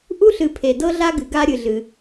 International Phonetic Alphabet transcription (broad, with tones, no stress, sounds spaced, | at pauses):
ʔ u˥ ɬ ɨ˨ pʰ e˨ d ɤ˥ ɮ a˥ ɡ ɨ˨ ɡ a˦ ɾʲ ɨ˨ ɮ ɨ˩